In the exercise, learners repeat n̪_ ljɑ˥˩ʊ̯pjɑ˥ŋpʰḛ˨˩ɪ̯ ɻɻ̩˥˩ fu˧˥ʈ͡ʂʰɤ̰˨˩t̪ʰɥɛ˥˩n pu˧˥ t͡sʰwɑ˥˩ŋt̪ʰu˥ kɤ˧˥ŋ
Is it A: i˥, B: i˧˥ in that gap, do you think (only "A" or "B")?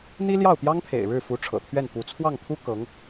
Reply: A